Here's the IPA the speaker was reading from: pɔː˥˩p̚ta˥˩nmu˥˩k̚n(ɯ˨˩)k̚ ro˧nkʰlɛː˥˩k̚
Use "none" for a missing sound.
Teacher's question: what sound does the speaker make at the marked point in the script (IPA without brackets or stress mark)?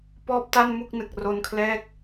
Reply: ɯ˨˩